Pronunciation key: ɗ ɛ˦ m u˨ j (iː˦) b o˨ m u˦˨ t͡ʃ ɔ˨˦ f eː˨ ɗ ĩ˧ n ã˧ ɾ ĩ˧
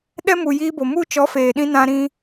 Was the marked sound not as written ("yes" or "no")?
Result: yes